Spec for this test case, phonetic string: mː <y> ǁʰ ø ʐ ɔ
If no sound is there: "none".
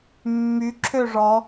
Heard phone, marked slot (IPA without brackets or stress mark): y